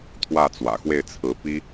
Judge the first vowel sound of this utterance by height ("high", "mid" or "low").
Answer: low